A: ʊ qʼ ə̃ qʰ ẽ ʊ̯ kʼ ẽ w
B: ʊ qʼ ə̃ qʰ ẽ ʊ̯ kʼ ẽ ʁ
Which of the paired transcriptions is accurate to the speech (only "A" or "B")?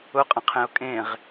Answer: B